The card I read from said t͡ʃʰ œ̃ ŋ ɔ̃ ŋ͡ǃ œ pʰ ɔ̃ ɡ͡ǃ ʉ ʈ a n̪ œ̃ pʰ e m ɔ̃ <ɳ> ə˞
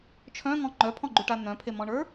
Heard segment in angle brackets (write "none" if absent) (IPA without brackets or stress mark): ɳ